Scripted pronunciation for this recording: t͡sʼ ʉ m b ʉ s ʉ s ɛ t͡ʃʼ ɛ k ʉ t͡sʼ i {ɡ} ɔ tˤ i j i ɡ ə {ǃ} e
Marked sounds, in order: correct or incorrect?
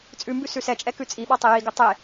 incorrect: ɓ, incorrect: tˤ

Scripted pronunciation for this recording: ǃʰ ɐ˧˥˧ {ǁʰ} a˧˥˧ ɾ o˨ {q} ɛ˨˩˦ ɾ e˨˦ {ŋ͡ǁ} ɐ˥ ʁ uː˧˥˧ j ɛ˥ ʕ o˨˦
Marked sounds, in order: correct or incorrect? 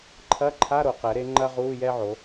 incorrect: ǃʰ, correct, incorrect: ŋ͡ǃ

